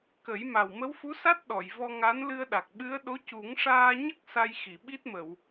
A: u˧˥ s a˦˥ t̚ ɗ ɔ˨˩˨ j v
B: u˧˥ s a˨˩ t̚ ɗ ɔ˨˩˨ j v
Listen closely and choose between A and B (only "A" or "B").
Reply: A